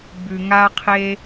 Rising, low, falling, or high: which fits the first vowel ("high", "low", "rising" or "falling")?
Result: low